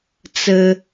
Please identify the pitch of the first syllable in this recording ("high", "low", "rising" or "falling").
low